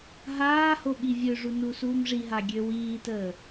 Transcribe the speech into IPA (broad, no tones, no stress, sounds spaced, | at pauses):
ɦ aː h o ɓ i vʲ ø ʐ u n u s uː m ʐ i ɦ a ɡʲ ø w iː t əː